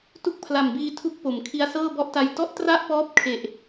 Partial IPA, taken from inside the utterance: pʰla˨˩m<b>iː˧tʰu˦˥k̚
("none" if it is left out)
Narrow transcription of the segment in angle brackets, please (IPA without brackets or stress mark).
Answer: b